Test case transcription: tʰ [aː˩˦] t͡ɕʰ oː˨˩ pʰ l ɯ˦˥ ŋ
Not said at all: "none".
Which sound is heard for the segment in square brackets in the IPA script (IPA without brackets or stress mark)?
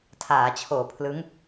aː˩˦